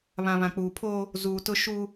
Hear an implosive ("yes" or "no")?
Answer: no